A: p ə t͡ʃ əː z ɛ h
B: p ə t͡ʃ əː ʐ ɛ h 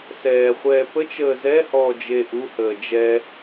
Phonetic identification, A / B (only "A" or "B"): A